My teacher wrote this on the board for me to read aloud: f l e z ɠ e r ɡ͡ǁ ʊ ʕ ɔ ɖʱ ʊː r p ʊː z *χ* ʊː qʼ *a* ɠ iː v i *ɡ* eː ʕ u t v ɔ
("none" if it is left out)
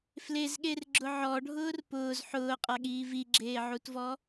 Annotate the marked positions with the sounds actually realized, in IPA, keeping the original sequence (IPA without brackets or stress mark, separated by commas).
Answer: ħ, a, ɡ͡ǁ